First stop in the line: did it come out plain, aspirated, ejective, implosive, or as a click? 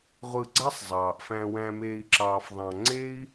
click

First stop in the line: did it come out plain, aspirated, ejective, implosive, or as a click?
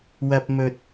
plain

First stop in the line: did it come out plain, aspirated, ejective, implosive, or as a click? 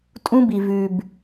ejective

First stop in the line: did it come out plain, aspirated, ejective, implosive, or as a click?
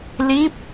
plain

